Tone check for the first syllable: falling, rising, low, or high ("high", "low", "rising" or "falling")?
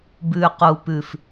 low